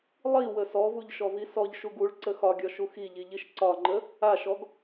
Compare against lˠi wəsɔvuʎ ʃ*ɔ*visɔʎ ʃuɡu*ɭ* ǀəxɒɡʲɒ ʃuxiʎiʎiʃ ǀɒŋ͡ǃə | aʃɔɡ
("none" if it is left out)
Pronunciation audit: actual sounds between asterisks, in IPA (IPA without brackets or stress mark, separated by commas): ɔ, ɭ